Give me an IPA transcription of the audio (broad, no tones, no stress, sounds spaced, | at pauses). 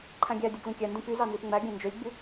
ǃʰ æ̃ ɡʲ æ dʲ o ɡ l ĩ kʲ æ n d ĩ p y z ɑ n z i p ŋ͡m æ ɡʲ æ̃ n d͡ʒ ø lʲ ɡ͡b y